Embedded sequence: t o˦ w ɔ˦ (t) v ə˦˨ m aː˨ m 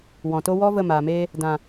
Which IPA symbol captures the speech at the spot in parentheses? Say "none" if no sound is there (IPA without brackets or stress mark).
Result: none